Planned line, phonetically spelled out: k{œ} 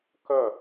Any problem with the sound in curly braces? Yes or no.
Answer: no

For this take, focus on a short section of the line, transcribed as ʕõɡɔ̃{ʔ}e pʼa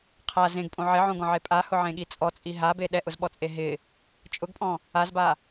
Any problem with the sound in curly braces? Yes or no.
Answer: yes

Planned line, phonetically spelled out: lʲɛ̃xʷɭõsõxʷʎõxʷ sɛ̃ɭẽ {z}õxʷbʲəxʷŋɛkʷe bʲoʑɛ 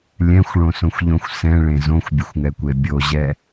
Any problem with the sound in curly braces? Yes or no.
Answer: no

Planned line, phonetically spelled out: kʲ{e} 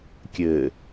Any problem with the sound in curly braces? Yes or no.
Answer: yes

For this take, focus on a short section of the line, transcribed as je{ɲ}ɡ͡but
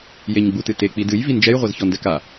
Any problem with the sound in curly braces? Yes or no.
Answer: no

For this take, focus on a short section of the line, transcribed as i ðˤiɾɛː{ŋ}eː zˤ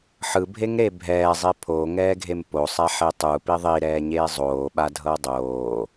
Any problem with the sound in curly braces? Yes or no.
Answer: yes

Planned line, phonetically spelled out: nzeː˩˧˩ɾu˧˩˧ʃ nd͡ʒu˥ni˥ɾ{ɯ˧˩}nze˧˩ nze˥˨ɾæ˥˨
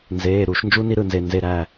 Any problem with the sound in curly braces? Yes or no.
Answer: no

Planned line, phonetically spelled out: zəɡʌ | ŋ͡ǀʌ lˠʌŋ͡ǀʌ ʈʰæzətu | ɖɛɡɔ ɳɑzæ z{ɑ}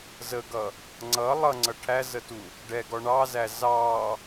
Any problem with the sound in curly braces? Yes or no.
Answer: no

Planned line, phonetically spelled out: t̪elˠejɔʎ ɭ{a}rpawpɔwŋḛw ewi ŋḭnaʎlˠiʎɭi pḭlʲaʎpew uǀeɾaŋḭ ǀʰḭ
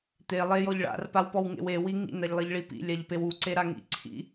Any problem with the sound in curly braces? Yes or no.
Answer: yes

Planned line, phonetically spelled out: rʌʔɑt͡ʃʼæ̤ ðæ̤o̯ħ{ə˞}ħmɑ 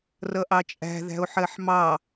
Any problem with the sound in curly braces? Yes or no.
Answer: yes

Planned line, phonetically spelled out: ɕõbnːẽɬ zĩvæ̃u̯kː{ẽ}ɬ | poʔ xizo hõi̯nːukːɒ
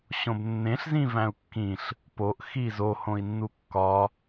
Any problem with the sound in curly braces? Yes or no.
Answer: yes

